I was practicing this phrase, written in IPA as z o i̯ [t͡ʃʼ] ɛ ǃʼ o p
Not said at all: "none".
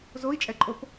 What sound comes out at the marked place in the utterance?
t͡ʃʼ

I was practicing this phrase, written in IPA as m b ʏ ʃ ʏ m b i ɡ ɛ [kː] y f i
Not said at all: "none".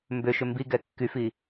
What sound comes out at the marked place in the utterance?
kː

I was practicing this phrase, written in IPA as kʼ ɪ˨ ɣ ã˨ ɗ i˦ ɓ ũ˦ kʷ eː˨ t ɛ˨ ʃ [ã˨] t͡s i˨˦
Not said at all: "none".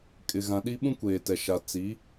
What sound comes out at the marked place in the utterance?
a˨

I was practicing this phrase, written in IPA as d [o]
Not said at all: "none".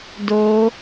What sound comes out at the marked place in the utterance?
o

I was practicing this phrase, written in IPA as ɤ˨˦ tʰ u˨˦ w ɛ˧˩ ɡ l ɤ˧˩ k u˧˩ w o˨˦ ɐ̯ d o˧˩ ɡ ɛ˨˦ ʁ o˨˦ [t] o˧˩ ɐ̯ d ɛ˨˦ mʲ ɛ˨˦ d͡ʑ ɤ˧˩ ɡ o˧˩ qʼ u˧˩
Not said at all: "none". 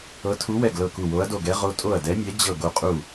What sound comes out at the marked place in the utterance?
tʼ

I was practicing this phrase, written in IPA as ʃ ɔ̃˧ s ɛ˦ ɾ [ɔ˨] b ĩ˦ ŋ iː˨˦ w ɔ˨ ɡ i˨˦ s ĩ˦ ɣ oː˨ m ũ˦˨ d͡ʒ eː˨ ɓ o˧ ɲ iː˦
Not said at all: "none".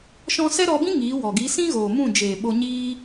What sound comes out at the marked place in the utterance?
ɔ˧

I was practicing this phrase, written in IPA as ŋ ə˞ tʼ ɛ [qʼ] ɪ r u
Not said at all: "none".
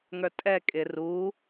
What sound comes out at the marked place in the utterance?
kʼ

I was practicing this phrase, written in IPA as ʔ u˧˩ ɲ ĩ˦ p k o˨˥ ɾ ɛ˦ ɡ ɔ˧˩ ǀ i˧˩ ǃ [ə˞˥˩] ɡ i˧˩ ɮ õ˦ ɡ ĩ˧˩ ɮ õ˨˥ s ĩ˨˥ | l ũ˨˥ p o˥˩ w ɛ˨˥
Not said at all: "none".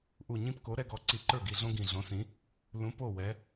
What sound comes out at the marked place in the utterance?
ə˞˥˩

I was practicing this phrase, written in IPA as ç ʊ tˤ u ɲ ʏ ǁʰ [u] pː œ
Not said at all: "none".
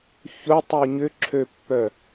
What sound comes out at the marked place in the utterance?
ø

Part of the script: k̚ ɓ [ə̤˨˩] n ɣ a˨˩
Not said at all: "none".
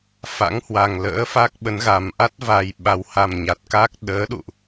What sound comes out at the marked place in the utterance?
ə˨˦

